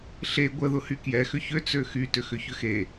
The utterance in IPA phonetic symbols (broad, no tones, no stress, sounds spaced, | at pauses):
ɬ e ɡʷ ə ð ʊ h y k j ɛ x ʏ ç ø t͡s ø x y t ʏ x ʏ ç ʏ x e